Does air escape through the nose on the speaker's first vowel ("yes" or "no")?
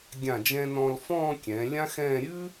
yes